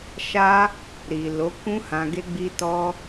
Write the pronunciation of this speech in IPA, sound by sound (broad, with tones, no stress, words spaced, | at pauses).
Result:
ʃa˦ | ɾi˨lo˨˦kũ˦hã˧ ɡe˦ɡ͡bi˦tɔ˦